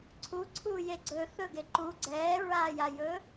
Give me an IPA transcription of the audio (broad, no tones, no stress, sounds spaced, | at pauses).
ǀʰ u ǀʰ uː j e ɡ͡ǀ ɵ θ ɵ ɡ e ǃ u ɡ͡ǀ ɛː ɹ aː j a j ɵː